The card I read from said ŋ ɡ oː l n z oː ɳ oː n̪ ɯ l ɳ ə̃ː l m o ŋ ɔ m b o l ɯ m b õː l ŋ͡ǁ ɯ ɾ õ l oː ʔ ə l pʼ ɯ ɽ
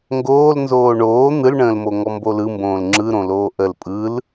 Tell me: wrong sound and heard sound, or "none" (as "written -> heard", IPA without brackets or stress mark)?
ɽ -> l